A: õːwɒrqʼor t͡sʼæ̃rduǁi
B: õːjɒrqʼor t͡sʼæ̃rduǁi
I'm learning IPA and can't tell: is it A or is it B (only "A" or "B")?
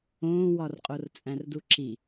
A